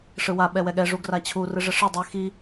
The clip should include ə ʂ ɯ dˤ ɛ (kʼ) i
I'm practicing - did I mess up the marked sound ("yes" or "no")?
yes